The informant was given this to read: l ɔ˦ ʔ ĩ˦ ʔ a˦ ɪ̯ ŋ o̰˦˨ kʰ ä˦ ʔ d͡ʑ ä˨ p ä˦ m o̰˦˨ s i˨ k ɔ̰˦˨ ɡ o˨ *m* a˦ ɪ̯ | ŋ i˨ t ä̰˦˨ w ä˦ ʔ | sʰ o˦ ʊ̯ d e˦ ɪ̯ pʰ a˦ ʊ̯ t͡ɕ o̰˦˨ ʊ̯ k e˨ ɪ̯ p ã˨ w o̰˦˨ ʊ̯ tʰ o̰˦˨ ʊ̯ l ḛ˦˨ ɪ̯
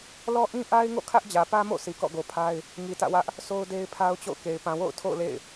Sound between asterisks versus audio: incorrect: pʰ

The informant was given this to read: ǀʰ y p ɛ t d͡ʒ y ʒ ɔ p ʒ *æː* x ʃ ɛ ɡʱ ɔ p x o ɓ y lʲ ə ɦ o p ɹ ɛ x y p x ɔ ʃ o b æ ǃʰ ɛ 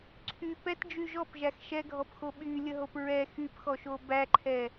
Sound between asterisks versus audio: incorrect: æ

